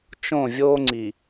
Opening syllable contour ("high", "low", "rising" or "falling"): falling